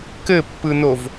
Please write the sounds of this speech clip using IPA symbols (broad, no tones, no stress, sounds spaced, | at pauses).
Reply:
k ɘ pː ɯ n o v